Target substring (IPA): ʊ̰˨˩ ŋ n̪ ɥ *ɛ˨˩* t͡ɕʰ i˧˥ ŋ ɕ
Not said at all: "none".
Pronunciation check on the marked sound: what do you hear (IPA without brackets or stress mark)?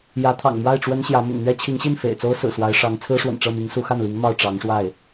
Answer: ɛ˥